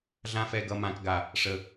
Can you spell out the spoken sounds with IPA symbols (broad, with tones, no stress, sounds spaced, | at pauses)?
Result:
ɮ ã˦ f ɛ˧ ɡ ʌ˧ m ã˨ k ɡ a˨ | ʂ ə˨